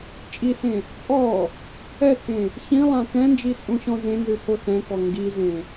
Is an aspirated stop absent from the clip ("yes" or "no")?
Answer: no